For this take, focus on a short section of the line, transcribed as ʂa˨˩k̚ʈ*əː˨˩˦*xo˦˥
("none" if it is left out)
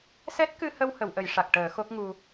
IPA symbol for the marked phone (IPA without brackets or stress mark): əː˨˩˦